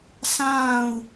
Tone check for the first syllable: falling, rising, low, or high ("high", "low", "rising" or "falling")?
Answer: falling